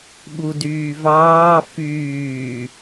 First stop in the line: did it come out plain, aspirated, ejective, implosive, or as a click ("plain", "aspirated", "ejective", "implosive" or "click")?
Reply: implosive